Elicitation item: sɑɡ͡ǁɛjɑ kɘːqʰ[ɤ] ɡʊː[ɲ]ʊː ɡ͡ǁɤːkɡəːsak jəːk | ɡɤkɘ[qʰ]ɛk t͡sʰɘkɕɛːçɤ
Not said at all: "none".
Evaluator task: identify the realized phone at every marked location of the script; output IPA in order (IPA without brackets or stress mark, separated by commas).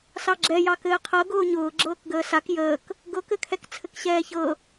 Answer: ɤ, ɲ, kʰ